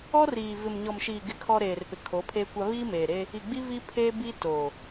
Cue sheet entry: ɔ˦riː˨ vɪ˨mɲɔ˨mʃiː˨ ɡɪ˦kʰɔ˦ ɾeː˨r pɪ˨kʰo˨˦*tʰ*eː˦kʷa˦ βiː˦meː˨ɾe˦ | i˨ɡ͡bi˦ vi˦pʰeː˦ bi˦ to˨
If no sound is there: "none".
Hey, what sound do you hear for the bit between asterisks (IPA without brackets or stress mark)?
pʰ